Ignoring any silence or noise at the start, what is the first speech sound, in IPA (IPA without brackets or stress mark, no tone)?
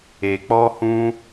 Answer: e